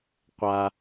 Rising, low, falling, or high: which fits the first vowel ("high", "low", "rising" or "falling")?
low